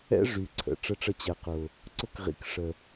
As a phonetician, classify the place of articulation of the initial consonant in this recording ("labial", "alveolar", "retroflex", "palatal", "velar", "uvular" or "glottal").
retroflex